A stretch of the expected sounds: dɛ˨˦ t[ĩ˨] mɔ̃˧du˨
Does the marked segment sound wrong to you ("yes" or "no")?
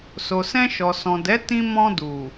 yes